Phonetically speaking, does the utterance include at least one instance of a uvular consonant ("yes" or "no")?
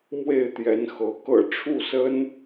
no